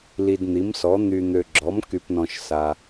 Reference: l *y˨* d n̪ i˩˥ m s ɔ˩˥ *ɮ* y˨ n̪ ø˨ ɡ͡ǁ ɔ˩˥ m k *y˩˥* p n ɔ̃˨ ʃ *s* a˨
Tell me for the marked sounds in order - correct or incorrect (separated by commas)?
incorrect, incorrect, incorrect, correct